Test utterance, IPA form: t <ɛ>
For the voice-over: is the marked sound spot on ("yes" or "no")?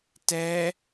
yes